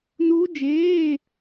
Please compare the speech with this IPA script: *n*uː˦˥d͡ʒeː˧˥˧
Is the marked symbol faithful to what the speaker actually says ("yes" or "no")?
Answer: yes